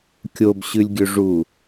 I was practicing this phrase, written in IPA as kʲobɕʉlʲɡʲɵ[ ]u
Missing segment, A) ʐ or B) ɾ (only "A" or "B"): A